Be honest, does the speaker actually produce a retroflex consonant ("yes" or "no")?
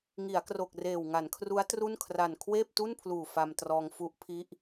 no